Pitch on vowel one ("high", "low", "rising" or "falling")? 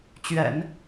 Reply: low